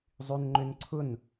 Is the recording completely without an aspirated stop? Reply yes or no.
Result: no